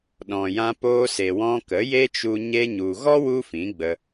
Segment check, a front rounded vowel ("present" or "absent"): absent